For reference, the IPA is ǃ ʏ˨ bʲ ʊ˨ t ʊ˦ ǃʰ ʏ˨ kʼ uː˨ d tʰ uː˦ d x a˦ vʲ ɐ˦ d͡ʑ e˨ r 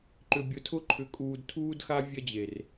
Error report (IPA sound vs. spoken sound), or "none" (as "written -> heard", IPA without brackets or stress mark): t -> tʰ